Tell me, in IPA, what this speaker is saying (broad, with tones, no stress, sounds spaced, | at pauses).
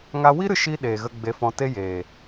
ŋ a˦ w i˦ ɾ ɨ˧ ʃ i˦ ɗ eː˨ ɣ ə˧ ɡ͡b e˧ f ɔ̃˧ t e˦ j eː˨